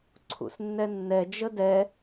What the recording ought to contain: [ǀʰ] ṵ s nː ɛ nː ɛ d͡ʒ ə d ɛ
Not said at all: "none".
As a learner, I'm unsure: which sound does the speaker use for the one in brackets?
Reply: ǀʰ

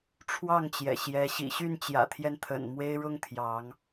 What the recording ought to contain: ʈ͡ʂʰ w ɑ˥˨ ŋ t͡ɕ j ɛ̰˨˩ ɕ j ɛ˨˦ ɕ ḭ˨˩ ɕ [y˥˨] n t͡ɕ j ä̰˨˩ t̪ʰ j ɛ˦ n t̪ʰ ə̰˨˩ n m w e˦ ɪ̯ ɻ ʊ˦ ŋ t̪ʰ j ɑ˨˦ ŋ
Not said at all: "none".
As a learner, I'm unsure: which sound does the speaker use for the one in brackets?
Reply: y˥˨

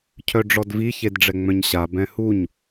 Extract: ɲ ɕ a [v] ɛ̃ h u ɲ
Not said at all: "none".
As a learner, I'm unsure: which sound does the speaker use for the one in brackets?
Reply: b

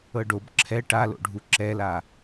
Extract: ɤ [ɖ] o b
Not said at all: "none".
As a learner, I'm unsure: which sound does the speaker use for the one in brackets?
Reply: ɖ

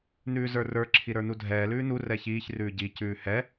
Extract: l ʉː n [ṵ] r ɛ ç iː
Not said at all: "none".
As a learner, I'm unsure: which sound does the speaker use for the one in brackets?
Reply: u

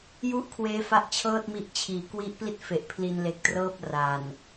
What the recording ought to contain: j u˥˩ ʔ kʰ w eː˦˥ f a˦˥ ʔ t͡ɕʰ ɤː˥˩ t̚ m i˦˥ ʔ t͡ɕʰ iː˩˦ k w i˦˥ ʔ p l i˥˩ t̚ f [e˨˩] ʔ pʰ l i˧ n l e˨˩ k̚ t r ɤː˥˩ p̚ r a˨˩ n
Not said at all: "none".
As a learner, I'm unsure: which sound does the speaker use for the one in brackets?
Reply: e˨˩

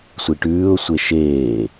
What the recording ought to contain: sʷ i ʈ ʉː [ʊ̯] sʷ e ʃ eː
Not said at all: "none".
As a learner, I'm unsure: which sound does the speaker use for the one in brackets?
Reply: ʊ̯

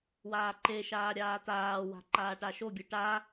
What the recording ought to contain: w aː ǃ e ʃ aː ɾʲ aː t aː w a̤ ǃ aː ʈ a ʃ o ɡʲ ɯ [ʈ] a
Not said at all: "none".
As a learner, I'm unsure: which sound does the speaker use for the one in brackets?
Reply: ʈ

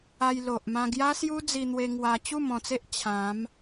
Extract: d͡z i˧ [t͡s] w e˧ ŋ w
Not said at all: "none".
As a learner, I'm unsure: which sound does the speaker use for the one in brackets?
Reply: n̪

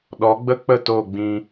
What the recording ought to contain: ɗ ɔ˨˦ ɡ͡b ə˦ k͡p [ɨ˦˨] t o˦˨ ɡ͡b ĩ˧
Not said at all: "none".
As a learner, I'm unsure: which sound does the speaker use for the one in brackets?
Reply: ə˦˨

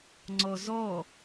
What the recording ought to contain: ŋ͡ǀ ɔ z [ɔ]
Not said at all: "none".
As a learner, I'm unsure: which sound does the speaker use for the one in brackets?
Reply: ɔ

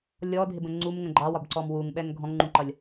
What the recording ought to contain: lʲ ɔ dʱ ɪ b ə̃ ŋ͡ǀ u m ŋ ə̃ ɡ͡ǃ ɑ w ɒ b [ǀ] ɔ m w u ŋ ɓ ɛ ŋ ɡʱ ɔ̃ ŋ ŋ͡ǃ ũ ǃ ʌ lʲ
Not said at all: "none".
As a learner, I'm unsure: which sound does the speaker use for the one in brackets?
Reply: ǀ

